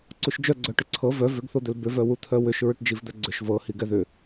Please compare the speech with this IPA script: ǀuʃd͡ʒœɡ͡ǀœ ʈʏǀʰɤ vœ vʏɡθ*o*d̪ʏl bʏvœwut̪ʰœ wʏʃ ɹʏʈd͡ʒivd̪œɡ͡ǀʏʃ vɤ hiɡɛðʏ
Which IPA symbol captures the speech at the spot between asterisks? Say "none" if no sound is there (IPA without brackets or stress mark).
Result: o